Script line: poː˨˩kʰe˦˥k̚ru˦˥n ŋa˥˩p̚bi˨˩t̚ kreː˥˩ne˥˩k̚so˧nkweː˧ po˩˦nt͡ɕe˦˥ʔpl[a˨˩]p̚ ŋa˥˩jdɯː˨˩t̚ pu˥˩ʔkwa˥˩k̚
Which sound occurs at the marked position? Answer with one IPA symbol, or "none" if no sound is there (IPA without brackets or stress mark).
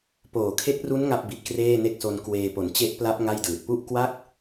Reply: a˦˥